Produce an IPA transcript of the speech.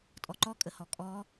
tʼɔǃɔkʼəhɔ kʼɔ

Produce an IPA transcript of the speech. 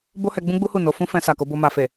bo˦hɛ˧ɡ͡bũ˦ɡ͡bu˦ hu˦˨no˧ fũ˦fɛ̃˧ sa˨ko˨˦bo˧ ma˨fe˨

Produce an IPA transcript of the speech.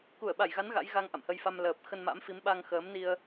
ku˧˩ə̯ ɓa˧˩jɣa˨˦n ɣa̰˧˥jɣa˧ŋ ʔa̰˧˨mhə˧jfa˧m ləː˨˩p̚ xə˧nma̰˧˥mfi˨˦m ɓa˧ŋxəː˨˦mni˧ə̯

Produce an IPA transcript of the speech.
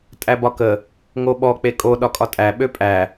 tʼæbɒkə | ŋoɓɔ k͡pekʼo ɗɒkʼɒtʼæ ɓøpʼæ

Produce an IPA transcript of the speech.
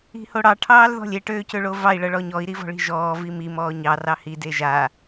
i̤hoɽɑ ʈʰɑːlðɔ̤lʲe ʈøːcøɭovɑi̯ ɭɤɭɔɲɔi̯ ɾivɔ̤ɭi̤ʒɔː vimi mɔːɲɑ rɑhi deʒa

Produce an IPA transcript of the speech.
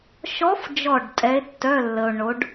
ʃɔ˧˥fd͡ʒɔ˧˩ɖ tʼɛ˧˥e̯tːœ˧˥˧lːə˧o̯ ɳo˧˥ɖ

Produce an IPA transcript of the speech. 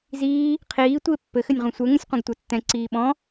ziː | qʰiː tʷie̯pːɘ xɘnʲʁũsʷɛ ŋũsʲqʷɛ̃ɡtʷɛtːɛ̃ ǀiːɓɔ̃

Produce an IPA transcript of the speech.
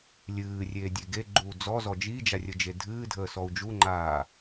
lʲɨːrʲeːdʲe ɡeɡ͡ǃuː d͡zɔzɔ d͡ʒid͡ʒarʲəd͡ʒe dʱɨːdʱəːsɔu̯ d͡ʒuŋ͡ǃaː

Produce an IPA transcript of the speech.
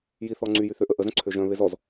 jiθɔ ŋ͡ǀyjyθøʔə ʔəzœ̃ ǀʰøʒœ̃ βezɔz

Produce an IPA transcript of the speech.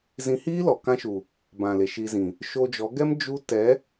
zĩ˧ hiː˦lɔ˨ kã˦ʃu˨ | bã˨le˨ ʃi˧zĩ˨ | ʃo˧d͡ʒɔ˨˦ɡɛ˦m d͡ʒu˦ tɛ˨˦

